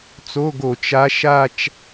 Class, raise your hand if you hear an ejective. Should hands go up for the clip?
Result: no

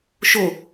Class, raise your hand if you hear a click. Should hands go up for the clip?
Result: no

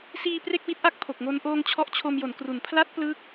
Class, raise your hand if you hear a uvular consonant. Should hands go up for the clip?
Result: no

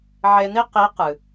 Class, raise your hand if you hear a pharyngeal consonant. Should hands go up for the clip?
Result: yes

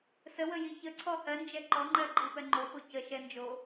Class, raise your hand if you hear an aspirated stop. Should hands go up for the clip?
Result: yes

